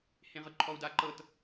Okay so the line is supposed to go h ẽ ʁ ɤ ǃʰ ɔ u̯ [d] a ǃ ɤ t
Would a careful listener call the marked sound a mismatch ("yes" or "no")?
no